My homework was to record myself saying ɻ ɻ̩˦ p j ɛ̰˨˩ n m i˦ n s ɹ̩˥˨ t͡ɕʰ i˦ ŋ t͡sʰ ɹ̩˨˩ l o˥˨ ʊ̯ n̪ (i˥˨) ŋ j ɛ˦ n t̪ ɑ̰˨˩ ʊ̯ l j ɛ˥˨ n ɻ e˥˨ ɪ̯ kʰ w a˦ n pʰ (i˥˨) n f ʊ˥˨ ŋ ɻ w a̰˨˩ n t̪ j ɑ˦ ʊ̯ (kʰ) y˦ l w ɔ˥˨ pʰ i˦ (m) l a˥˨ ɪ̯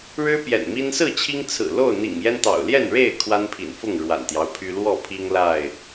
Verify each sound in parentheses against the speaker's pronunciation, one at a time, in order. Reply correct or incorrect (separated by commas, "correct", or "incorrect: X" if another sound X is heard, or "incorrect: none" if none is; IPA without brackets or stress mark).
incorrect: ḭ˨˩, incorrect: ḭ˨˩, incorrect: pʰ, incorrect: ŋ